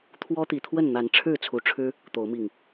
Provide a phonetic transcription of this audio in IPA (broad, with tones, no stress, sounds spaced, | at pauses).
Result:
t̪ʰ w ɔ˦ t̪ i˨˩ t̪ʰ w ə˥˨ n n̪ a˨˦ n ʈ͡ʂʰ ɻ̩˥˨ t͡sʰ u˨˩ ʈ͡ʂʰ ɻ̩˦ | t̪ o˨˦ ʊ̯ m i˨˩ ŋ